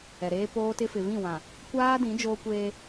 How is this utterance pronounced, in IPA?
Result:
ɛ˨ɾeː˦ poː˦tɪ˦ fɪ˨vĩ˦˨wã˨ | kʷaː˦dĩ˨˦ d͡ʒoː˦kʷeː˦

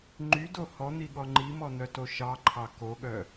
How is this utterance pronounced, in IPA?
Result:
ŋ͡ǃydo hɔn̪iɠɔ ŋ͡ǃimɔn̪œto ʃɑǃʰɑ koɠœ

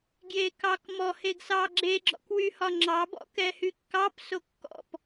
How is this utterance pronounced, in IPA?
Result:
ɡjekɑkmɔ heɡsɑɡ͡ǁe ɡ͡ǁɔ̰kwyhɒŋ͡ǁɑ bɔ̰kɛhykːɑp sokːɔ̰p

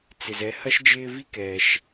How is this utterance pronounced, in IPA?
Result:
t͡sɪ˩zɛ˨hɐ˥ʃd͡ʒɪː˦ vi˥kɛː˩ʃ

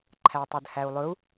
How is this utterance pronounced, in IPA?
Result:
ǃʰætˤɵdhæu̯lˠɵu̯

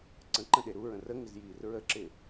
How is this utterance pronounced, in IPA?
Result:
ǀə̃ǃə̃ɗe ɾuɹə̃ rəŋɪzjiːr ɹəǁɪ

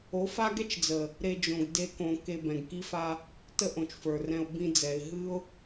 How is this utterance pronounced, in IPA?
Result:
o˨˦fa˦ ɡɛ˦t͡ʃd͡zə˨ | ɾe˧d͡ʒõ˨ɡ de˦kõ˧ ke˧bɛ̃˨ɡki˦fa˦ | tə˦ʔõ˨t͡ʃfə˞˨rɛ̃˧ʊ̯ bĩ˧d͡zɛ˨ɪ̯ ɦɨ˦ʊ̯

